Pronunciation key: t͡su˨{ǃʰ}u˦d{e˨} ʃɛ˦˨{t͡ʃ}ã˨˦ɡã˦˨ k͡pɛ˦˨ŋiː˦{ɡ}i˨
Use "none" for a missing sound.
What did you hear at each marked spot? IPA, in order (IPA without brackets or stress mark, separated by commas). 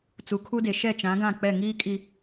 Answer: kʰ, e˨, t͡ʃ, kʼ